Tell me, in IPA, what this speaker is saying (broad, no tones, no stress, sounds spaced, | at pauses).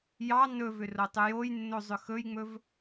j ɑ n ɵ v ʏ r o tˤ ʏ j o j nː o zˤ ʏ x ɵ j ŋ͡m ɵ v